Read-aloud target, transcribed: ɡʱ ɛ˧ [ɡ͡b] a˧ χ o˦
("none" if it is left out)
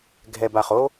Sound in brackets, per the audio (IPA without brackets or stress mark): b